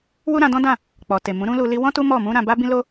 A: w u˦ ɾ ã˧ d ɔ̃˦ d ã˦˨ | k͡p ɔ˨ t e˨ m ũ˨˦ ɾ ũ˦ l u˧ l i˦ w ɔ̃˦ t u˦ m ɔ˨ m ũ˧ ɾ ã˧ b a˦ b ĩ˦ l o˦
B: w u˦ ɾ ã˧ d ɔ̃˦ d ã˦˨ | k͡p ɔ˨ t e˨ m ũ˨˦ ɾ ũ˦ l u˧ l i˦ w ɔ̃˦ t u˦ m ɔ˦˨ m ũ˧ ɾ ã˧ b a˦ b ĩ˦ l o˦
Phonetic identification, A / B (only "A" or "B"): B